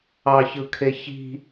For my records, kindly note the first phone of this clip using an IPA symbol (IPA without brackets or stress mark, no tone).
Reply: ɑ